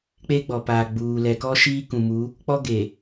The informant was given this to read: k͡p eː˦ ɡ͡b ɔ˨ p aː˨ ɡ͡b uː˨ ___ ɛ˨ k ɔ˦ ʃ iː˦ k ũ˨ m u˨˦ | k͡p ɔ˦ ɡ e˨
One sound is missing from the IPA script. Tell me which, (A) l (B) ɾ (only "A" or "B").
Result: A